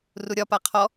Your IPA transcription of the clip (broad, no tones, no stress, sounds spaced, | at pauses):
r u ɾʲ ɒ p a qʰ ɔ